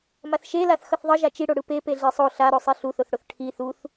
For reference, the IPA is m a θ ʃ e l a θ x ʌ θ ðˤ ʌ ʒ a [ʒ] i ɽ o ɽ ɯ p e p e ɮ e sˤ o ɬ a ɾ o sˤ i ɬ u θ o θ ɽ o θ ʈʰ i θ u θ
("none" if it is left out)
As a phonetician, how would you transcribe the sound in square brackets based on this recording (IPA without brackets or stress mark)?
t͡ʃ